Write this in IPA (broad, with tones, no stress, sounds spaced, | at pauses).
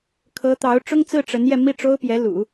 kʰ ɤ˧˥ t̪ ɑ˧˥ ʊ̯ ʈ͡ʂ ʊ˥ ŋ t͡s ɹ̩˥˩ ʈ͡ʂ ə˧˥ n j ɛ˧ m i˥˩ ʈ͡ʂ o˥ ʊ̯ p j ɛ˧˥ l ṵ˨˩˦